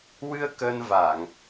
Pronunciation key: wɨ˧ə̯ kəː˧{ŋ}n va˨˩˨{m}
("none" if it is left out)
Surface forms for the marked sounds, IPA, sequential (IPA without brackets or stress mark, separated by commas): none, ŋ